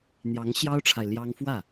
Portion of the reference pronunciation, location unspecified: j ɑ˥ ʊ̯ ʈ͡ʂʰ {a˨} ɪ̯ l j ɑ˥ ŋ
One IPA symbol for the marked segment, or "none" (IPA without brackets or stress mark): a˨